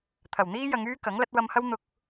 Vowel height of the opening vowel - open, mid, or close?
open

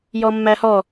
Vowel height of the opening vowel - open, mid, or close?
mid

